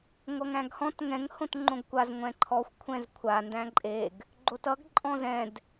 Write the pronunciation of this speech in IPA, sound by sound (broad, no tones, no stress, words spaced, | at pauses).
ŋʷʌŋæ̃ɡhɔ̃t ŋɛ̃ŋ hõtŋ͡ǃõɡkʷaz ŋʷɛ̃ǃʰɔxʷ kʷʰɛ̃zkʷʰa ndæ̃ǃʼeɡ | ɡ͡ǃotʌɡ ǃʼɔ̃zɛ̃d